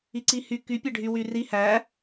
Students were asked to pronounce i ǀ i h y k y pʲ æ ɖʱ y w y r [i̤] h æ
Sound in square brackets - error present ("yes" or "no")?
yes